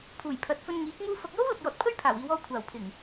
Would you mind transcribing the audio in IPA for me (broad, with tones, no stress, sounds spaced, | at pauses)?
pʰ uː˨˩ j pʰ ɐ˨˥ t̚ f ɵ˧ n ŋ iː˨˥ k̚ m uː˧ f ɐ˨ k̚ j o˥ w l ɐ˨ k̚ j ɔː˨ t̚ pʰ ɵ˥ ɥ pʰ aː˨˩ w iː˨˧ w ɔː˧ kʷʰ aː˨˩ w pʰ ɪ˨˩ ŋ